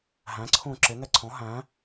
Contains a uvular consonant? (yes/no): no